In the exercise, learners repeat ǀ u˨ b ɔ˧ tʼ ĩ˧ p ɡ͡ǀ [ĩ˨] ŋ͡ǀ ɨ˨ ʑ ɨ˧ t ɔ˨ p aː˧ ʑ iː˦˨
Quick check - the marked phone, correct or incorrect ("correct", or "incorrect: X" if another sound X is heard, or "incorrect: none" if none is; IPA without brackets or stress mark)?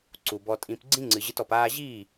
incorrect: ĩ˦